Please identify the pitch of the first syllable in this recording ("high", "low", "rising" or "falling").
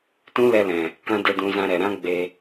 high